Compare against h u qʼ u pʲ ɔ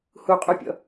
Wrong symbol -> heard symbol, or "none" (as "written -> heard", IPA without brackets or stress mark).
ɔ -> ɔ̰